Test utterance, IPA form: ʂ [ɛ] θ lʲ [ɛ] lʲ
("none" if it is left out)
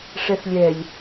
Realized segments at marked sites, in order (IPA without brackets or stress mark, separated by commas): ɛ, ɛ